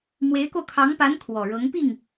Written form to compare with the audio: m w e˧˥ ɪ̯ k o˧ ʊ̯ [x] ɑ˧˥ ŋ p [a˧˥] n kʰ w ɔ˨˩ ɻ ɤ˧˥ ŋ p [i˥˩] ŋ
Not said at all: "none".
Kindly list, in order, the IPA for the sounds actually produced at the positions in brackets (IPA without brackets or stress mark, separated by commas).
kʰ, a˧˥, i˥˩